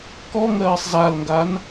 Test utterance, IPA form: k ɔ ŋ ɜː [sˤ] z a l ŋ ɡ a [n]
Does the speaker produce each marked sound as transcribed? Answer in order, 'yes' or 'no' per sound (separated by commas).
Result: yes, yes